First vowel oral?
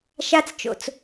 yes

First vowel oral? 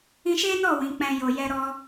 no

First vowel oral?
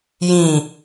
no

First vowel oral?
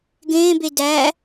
no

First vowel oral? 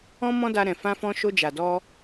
no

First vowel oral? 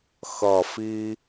yes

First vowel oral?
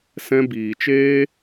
no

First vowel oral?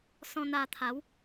no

